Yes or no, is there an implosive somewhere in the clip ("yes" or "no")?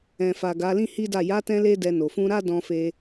no